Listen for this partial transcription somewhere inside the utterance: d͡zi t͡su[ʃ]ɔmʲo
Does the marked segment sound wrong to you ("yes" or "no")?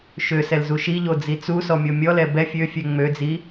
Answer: yes